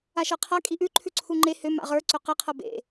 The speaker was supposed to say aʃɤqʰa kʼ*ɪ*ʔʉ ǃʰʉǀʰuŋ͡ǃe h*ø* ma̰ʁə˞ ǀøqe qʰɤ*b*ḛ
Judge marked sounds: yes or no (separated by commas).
no, yes, yes